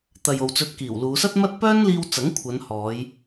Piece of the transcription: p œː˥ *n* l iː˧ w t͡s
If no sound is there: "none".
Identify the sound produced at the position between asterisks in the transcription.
n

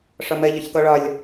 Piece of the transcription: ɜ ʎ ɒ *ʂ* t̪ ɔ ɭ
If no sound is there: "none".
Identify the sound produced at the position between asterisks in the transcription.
ç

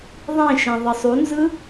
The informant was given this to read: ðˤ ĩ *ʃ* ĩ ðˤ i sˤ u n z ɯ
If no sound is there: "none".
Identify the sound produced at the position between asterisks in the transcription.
ʃ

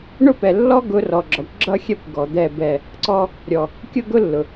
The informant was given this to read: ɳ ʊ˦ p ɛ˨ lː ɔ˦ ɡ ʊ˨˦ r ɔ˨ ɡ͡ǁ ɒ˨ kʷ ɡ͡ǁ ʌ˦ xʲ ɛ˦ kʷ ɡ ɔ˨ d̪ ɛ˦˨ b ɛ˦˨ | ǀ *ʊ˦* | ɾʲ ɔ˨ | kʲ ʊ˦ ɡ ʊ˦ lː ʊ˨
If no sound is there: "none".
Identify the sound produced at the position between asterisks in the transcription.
ɔ˦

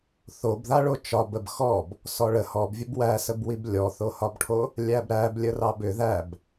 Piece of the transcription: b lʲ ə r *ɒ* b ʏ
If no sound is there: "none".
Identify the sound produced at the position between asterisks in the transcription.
ɑ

